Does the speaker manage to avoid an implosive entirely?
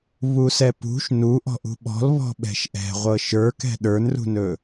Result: no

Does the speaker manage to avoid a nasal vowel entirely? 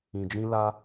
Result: no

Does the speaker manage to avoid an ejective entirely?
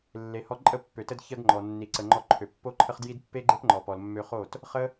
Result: no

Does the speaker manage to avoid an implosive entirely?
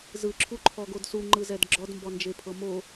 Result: yes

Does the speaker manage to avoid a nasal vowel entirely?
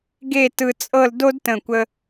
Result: no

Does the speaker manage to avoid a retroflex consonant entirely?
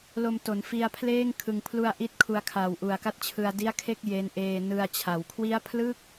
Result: yes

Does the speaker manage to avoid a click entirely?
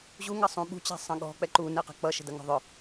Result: no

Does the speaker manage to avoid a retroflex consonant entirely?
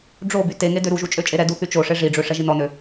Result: no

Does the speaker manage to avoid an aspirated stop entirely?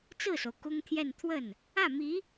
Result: no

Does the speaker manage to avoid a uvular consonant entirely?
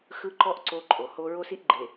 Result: yes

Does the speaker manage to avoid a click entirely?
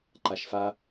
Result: no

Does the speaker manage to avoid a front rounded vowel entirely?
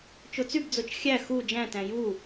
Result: no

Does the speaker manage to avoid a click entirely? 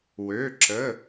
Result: no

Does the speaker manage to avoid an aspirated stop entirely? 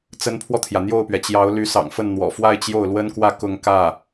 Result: no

